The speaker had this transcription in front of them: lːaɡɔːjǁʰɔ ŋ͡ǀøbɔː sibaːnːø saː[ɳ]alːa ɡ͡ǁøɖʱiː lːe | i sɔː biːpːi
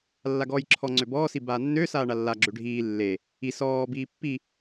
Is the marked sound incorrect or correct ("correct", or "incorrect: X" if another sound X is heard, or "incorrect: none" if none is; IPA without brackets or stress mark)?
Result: correct